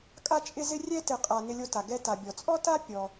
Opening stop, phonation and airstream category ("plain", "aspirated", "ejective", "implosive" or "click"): ejective